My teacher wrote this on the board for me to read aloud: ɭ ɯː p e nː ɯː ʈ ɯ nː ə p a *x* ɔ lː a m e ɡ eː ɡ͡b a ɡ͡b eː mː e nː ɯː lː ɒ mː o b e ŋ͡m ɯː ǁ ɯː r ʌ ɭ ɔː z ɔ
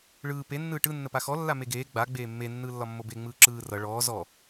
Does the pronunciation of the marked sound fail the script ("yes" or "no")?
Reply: no